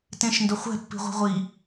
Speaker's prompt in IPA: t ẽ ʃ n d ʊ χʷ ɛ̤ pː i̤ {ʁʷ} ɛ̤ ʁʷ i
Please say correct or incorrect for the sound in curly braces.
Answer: correct